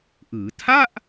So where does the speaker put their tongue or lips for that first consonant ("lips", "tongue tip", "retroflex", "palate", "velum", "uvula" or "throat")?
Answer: throat